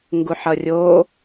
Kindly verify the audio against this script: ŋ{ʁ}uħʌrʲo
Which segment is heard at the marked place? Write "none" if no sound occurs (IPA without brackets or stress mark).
ɡ